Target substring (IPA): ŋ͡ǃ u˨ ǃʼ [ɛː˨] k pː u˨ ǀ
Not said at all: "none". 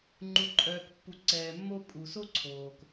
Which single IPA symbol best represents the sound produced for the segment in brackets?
œː˨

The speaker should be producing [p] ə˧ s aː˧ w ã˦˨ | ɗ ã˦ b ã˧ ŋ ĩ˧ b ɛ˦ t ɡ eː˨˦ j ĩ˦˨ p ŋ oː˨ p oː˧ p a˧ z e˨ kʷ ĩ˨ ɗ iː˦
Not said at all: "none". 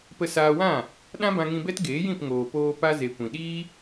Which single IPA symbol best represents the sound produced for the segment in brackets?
p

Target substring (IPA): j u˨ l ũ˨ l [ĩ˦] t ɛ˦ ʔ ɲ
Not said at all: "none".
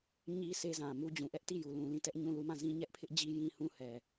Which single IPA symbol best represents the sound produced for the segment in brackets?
ĩ˦˨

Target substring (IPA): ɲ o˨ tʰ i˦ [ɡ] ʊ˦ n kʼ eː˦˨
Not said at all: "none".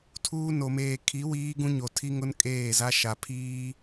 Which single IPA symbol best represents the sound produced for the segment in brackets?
ŋ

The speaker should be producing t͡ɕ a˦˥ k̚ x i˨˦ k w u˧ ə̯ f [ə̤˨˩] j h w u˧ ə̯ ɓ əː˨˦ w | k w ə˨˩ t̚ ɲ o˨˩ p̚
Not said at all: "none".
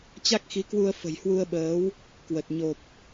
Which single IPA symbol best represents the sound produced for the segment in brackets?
ə̤˨˩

